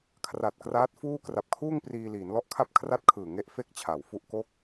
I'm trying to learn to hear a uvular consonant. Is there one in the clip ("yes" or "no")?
no